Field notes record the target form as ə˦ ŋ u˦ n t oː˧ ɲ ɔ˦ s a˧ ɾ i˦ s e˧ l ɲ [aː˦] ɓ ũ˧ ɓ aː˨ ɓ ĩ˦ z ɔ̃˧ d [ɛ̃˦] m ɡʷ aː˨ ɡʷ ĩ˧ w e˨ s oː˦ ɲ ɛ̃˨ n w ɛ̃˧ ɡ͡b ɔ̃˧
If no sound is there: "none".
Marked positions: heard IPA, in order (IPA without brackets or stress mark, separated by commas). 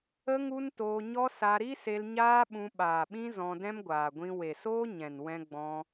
aː˦, ɛ̃˦